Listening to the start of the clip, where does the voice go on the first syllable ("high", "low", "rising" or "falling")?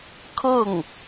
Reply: falling